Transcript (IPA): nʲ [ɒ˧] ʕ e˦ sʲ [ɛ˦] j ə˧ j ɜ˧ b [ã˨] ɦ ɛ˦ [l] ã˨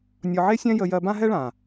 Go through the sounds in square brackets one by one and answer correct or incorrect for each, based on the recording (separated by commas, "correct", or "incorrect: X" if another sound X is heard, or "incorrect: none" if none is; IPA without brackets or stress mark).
correct, incorrect: ɛ̃˦, incorrect: ã˦, incorrect: ɭ